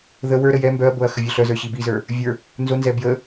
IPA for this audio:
ð ə w ə˞ ɾ ə j ɛ m b œ ɐ̯ b o ɐ̯ x ə vʲ œ ɬ œ z ə˞ ɕ i b i z ə˞ | vʲ ə˞ | n z o n z ɛ b j ə

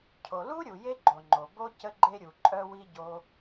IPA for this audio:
cʰ o˨ l u˦ ɾʲ u˨ j e˦ ɡ͡ǃ o˨ ŋ͡ǃ o˨ b o˧ c ə˧ ɡ͡ǃ e˧ ɾʲ u˨ ǃʼ œ˧ w i˧ ɟ o˧

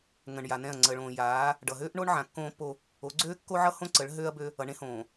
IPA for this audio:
ŋ ə̃˨ ɳ j a˨ n ɛ̃˦˨ ɐ̯ ŋ͡ǀ əː˨ ɭ õː˨ j aː˨˦ | ɖ ʌ˨ ɦ øː˦ ʔ ɳ o˦ ɳ ʕ ã˨ kː õː˦ pː o˦ | o˨˦ ɡ͡ǀ øː˦ kː o˦ ʕ ʌ˦ h õ˦ ǀ ə˨˦ ɭ ɦ øː˦ ɐ̯ b ø˦ | ʌ˨ ɳ ẽ˦ h õː˨

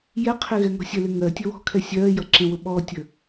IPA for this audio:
j ɛ qʰ ɪ ɣ ɛ ŋ ɔ̤ sʲ ə l ɪ ŋ ɜ tʲ ə w ɔ̤ kʰ ɛ sʲ ɜ j ʌ ǁ ə̃ w ʊ ɓ ɔ tʲ ə

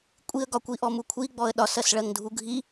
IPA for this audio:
kʷʼ i ə̯ ɡ ɒ kʷ i ʔ ɔ m u kʷʰ i ɡ͡b ɔ ə̯ ɗ ɒ s ɜ s ɭ ɜ ŋ dʱ u ɡʱ i

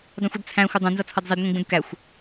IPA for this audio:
dˤ ĩ xʷ ə d t͡sʰ æ̃ xʷ ɪ dˤ ũ n z ʌ t͡sʰ ʌ d zˤ i d ŋʷ ĩ ɡ͡b ũ d k æ xʷ

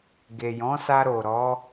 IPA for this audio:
ɡ e˨ j ɔ̃˨˦ s a˧ ɾ o˨ ɾ ɔ˨˦

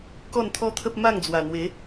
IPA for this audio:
k ɔ˥˧ n t̪ʰ ɔ˦ t̪ʰ ə˦ p̚ m a˥˧ ŋ d͡z w a˨˩ n̪ w e˨˦

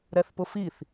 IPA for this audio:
ɾ ɛ θ p ʊ f i θ

